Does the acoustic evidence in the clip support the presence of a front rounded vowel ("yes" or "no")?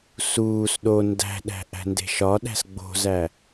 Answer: no